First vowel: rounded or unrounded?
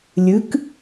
unrounded